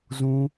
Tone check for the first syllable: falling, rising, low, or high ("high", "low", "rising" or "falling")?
high